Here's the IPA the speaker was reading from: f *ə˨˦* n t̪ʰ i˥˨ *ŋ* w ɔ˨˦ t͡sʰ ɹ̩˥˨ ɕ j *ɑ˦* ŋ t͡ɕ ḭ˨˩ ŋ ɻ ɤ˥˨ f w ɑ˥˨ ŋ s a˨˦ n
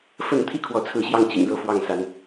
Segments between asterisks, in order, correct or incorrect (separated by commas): incorrect, incorrect, incorrect